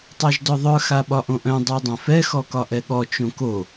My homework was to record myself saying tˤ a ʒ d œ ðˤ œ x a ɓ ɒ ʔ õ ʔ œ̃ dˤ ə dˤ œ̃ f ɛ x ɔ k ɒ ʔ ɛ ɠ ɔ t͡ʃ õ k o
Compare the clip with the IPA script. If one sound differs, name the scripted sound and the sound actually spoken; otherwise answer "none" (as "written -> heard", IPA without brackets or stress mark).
ə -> a